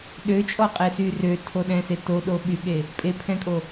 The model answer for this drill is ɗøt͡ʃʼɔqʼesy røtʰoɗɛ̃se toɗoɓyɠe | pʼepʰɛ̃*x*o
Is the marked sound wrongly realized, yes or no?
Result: yes